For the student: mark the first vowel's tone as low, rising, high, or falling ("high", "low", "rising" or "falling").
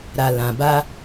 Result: low